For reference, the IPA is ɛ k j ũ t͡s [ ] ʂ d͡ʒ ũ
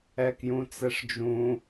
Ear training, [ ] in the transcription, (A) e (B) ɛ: B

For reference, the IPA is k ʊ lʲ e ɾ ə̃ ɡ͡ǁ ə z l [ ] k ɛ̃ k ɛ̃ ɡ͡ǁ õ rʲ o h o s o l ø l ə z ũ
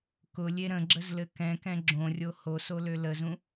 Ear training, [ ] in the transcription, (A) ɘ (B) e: A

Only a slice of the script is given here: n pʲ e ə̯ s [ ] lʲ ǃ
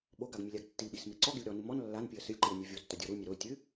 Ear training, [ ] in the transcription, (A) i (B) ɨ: B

